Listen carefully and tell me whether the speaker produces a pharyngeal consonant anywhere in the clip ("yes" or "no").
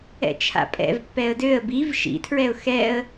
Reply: no